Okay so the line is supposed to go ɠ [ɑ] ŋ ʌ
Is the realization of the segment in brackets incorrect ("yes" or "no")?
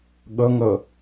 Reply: yes